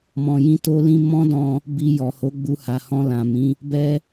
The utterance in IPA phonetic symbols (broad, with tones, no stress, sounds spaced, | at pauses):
m ɔ̃˨ j ĩ˧ t o˧ l ĩ˧ m ɔ̃˦ d ɔ̃˧ | b i˧ j ɔ˨ h o˨˦ ɡ͡b u˧ h a˨ h ɔ̃˧ l ã˨ m ĩ˨˦ | b ɛ˧